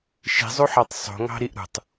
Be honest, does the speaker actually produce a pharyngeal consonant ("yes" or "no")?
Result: yes